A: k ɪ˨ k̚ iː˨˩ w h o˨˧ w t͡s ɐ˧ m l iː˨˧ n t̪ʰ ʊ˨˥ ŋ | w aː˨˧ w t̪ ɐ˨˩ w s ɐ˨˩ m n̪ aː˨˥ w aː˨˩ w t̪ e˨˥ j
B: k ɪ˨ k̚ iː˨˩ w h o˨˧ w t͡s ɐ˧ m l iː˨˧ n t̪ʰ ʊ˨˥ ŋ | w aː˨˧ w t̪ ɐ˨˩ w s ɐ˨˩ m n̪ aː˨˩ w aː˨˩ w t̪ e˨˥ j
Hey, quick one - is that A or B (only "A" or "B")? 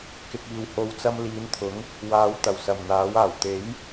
A